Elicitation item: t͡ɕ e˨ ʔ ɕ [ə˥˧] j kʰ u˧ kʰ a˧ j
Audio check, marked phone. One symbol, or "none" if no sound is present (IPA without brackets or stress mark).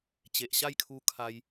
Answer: a˥˧